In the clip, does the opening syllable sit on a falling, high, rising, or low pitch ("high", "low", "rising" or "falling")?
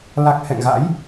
low